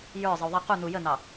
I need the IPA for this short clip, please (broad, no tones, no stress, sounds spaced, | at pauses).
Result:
j ə˞ zˤ ə u̯ ðˤ ɛ q u n̪ u j ə n̪ ɑ